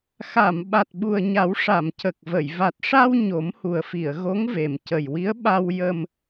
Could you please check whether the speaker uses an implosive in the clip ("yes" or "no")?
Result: yes